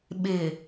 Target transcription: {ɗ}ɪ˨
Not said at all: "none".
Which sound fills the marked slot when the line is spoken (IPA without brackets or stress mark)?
ɓ